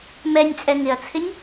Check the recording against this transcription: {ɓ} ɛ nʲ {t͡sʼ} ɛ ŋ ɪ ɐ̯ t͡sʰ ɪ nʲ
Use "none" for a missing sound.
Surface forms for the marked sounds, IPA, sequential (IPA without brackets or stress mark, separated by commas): m, t͡sʼ